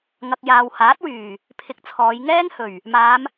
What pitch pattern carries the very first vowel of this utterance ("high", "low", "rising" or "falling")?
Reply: low